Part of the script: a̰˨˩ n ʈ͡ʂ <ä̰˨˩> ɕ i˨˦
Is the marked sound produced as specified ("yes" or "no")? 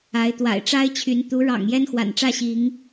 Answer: no